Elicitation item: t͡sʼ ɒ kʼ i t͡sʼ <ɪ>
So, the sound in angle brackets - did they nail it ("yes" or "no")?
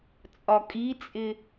yes